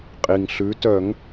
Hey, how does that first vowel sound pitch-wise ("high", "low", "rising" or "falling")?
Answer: low